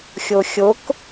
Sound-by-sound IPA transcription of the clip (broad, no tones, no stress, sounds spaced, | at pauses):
xʲ o xʲ o k